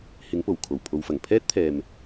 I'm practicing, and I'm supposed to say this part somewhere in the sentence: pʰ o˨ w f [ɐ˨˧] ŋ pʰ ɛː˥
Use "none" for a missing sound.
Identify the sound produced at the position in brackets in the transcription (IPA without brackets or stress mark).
ɐ˨˩